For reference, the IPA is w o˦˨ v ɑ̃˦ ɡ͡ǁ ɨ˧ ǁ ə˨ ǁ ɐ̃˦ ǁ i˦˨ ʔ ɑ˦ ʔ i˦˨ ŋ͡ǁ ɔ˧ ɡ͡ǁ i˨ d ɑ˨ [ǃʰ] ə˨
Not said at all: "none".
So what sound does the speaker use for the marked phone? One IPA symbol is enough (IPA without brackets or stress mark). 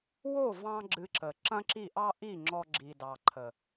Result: ǃʰ